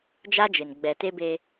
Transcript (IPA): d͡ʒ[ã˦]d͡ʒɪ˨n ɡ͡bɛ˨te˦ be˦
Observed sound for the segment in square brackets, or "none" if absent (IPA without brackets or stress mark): a˦